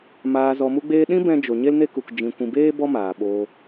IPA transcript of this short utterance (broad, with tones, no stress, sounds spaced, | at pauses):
m aː˨ z ɔ˨ m u˧ ɡ͡b eː˧ ɗ ĩ˦ b ɛ̃˧ d͡ʒ o˨ ɲ e˦ l n e˦ k u˨ k d͡ʒ ĩ˨ kʷ ĩ˨ b eː˦ b ɔ˦ m aː˨ ɓ oː˧